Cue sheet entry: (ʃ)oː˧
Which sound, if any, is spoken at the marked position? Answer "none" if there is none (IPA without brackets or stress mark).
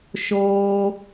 ʃ